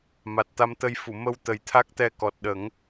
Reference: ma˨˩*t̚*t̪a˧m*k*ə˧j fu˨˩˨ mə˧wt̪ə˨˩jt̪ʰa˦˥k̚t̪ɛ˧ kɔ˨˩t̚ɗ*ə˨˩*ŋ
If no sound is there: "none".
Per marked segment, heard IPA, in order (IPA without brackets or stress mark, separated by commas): t̚, t̪, ə˨˩˦